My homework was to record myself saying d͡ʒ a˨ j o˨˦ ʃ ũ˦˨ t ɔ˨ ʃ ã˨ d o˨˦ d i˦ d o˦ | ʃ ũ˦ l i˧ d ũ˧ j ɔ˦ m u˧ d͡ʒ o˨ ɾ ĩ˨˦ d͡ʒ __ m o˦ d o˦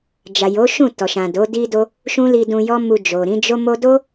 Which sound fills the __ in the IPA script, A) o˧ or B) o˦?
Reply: B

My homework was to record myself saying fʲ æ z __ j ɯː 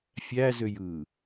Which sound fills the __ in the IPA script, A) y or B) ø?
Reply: B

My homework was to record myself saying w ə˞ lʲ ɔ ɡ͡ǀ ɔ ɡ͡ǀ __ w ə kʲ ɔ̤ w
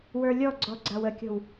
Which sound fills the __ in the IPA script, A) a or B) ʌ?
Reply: A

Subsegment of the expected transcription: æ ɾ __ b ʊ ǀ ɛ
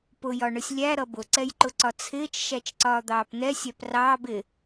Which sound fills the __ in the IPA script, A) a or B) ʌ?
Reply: B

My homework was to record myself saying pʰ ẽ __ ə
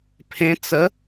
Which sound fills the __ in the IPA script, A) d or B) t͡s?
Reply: B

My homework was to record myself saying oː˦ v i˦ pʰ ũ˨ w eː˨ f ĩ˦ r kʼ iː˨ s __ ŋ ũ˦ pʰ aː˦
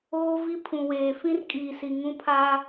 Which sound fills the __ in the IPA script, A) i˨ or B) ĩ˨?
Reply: A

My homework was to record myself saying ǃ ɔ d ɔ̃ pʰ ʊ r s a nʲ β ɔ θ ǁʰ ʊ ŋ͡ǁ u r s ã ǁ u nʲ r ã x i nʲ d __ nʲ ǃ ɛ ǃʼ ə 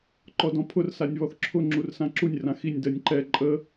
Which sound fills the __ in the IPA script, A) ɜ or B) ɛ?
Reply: A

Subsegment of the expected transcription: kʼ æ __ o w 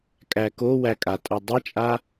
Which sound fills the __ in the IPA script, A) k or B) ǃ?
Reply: A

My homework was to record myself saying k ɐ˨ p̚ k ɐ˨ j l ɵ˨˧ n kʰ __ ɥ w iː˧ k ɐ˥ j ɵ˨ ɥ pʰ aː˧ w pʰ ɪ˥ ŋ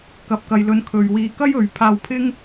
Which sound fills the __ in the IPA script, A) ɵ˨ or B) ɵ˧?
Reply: A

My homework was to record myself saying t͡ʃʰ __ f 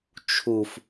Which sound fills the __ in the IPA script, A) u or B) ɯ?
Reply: A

